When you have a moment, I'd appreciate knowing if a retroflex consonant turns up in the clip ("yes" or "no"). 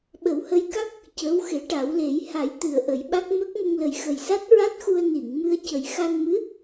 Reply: yes